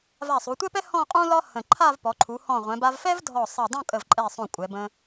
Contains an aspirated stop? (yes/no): yes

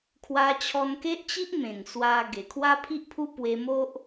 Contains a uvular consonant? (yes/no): no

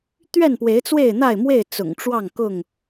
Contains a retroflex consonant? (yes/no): yes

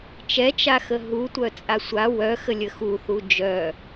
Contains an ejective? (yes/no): yes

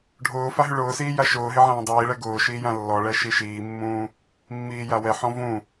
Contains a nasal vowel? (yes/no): yes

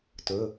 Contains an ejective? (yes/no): no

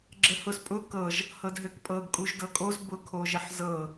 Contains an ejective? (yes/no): yes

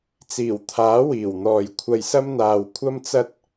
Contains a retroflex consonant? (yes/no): no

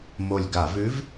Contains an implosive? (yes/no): no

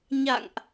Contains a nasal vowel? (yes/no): no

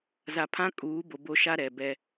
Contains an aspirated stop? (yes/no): yes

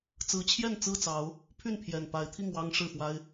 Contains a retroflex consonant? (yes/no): yes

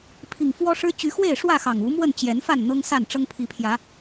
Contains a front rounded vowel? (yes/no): yes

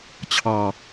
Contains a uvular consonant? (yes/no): no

